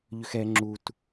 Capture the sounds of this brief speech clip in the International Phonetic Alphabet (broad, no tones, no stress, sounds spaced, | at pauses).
ʎ ʏ x ɛ ŋ͡ǁ u t